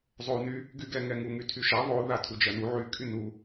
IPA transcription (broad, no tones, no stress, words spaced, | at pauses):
zˤou̯ny | ɡyɡɛŋɛŋu ŋytʰyʃa ðˤoða tʰud͡ʒɜnu ʕykʼy nu